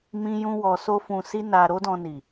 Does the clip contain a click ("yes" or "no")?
no